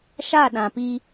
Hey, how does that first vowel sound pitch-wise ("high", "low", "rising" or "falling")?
falling